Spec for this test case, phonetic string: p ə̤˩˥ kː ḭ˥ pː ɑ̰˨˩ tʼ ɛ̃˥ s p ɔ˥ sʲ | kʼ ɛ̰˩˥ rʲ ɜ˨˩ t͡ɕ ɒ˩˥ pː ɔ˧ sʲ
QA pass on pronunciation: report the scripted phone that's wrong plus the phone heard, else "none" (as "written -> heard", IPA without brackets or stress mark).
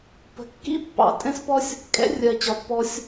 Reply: none